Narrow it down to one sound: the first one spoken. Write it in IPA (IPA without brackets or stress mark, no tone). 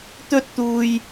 t̪